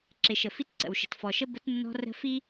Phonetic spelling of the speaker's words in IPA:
ǁɪ˨ʃə˨fi˧t ǀə̰˨wʃə̤˨tfɔ˨ʃə˦ bə˧tnːɔ̤˧ rə̤˧ fi˦

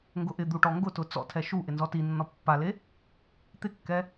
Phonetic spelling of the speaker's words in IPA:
ŋɡʊʔɪd̪u ʈɔŋɡʊtʊ t͡sɔ̰tʰɛ ʃu ʔɪnzɔtinːɔ pːale | t̪ɪkːɛ

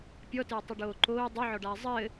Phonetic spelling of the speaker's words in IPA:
pʲɔtɘːtˤɨɖoː ǃoː dˤuʕɔɖaː zˤɘː

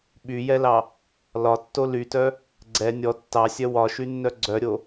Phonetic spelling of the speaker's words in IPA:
ɓyjɛlɑ | lɒtːo lytœ | ɡ͡ǀɛ nʲɔ tːɑsʲœ wɒʃynːœ ɡ͡ǀœɾʲo

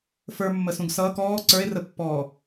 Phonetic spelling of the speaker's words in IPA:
fə˞mːəsũɡ sʌːk ɔː ǀə˞e̯rəpːɔː

